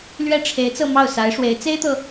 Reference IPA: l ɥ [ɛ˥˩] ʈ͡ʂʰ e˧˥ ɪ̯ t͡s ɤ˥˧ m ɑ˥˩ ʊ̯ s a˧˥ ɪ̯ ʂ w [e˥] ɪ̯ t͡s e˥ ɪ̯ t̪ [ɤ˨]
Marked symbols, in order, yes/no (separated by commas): yes, no, yes